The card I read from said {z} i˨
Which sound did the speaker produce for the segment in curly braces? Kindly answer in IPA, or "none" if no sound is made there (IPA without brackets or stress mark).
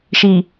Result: ʃ